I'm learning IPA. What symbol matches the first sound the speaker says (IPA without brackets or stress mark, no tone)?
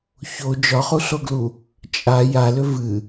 ç